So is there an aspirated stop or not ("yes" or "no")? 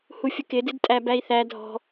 no